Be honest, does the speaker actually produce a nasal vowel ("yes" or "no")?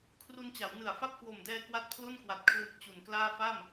no